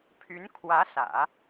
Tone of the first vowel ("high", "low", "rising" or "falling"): rising